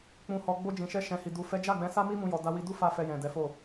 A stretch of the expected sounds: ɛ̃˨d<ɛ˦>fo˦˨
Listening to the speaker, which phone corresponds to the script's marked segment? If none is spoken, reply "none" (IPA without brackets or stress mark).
ɛ˨˦